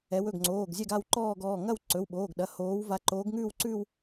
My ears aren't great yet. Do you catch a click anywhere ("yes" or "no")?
yes